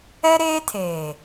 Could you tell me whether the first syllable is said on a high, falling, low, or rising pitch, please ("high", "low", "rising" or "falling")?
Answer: high